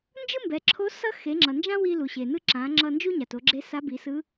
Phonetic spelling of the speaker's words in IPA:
nd͡ʒɯ˥mbɛ˩˧ǁʰo˧˥ sʌ˥ xe˩˧ŋ͡ǁʌ˩nd͡ʒã˥ wi˧lu˩ ɕe˩nɯ˥ ǁã˩˧ŋ͡ǁʌ˧ nd͡ʒu˥ɲa˩to˩˧ɡ͡ǁe˧˥ sa˧˥bi˩˧sɯ˧˥

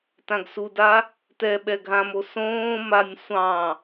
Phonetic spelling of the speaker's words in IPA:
tãɡsuda | tɛ ɓɛɡʱãmo sõː manʲ sʷɑ̃

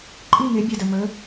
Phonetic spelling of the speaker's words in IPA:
ǃʼi˥˨ŋe˨˥bʲɐ˧˩də˧˩ mə˨˥

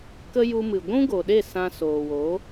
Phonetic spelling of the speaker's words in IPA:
kə˧ ju˧mɨ˨ ɡʷũ˦ɡo˨ɗe˦˨ sã˧soː˨wo˨˦

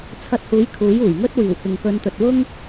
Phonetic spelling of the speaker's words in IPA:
t͡sʰɐ˧t̚huː˨˥j kʰuː˨˥juː˨˩j ŋɵ˥t̚ wiː˨˩wkɪ˨ŋkɵ˧nt̪ɵ˨t̚ wʊ˥ŋ

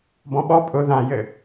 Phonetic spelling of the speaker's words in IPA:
bɔ̃ɓɔ pʼʊ ðãjɘ

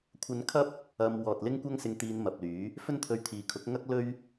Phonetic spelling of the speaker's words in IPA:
kʷʰɐ˧nkʰɐ˥p̚ | ɐ˧m wɔː˨t̚lɪ˥ŋkʷɐ˥ŋsɪ˧ŋ t̪iː˧nmɐ˨p̚lyː˨˥ | fɵ˥nt̪ʰɵ˧ɥt̪ʰiː˨kʰʊ˨˥k̚ ŋɐ˥k̚lɵ˥ɥ

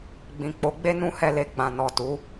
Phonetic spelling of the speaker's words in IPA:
ɡ͡bĩ˨k͡po˨˦ɡ͡be˦ nũ˦hɛ˦˨le˧ɡ͡bã˨ nɔ˨tu˨˦

